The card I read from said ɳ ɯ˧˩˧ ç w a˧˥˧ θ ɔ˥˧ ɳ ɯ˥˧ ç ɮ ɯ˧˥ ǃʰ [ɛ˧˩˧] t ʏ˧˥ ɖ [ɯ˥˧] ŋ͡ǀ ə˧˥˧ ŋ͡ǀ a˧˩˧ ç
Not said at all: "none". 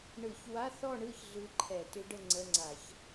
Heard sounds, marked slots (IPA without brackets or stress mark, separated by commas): ɛ˧˩˧, ə˥˧